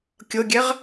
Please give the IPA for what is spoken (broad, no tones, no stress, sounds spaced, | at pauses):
kʲ ɤ ɡʲ ɛ ʁ